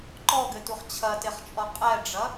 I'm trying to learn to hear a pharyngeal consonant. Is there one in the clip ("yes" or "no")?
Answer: no